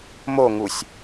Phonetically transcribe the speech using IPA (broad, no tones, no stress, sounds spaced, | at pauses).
m o ŋ u sʲ